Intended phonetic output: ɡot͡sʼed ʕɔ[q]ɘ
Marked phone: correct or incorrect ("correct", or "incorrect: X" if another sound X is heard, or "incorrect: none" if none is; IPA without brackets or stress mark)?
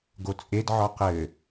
correct